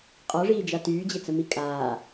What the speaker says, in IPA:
qʼ ɔ ʐ iː d͡ʒ a t yː d͡ʑ e t͡s ə m i kʼ aː

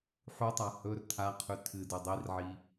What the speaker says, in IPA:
ħ u tˤ a h ɵ r tʰ a qʰ ʉ tʰ ɨ d ʉ dˤ i r ʕ i

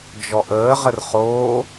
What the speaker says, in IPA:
d͡ʒ ɔ ʔ əː ʁ ə r χ oː

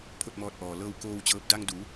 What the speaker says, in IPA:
pʰ o˥˨ t̚ m ɔː˧ t̚ ʔ ɔː˩ l ɤː˧ w k oː˧ w t͡ɕ ɤː˧ p̚ d a˧ ŋ d u˩˧

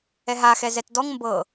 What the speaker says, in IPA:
ɛ ɦ a x ɛ z ɛ t d ɔ ŋ m b ɤ

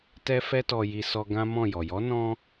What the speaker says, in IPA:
t ɛ˧ f ɛ˧ t ɔ˨ j i˨ s ɔ˧ ɡ ã˦ m ɔ̃˦˨ j ɔ˨ j ɔ˨˦ n ɔ̃˧

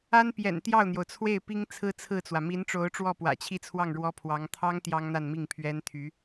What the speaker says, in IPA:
a˥ n p j ɛ̰˨˩ n t̪ j ɑ˥˩ ʊ̯ n̪ j o˩ ʊ̯ t͡sʰ w e˥˩ ɪ̯ p i˥ ŋ t͡sʰ ɹ̩˥ t͡sʰ ɹ̩˥˩ t͡s w ä˩ m i˧˥ n ʈ͡ʂ o˧˥ ʊ̯ ʈ͡ʂ w ɔ˥˩ p w ä̰˨˩ t͡ɕʰ i˥˧ t͡sʰ w ɑ˥˩ ŋ ɻ w ɔ˥ pʰ w ɑ˧˥ ŋ t̪ʰ ɑ˥ ŋ t̪ j ɑ˥ ŋ n̪ a˥˧ n m i˥˩ ŋ pʰ ɥ ɛ˥ n t̪ʰ y˧˥

